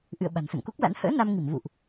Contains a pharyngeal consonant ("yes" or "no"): no